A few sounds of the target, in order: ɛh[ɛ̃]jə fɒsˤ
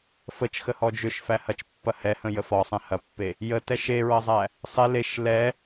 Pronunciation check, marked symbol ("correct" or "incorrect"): incorrect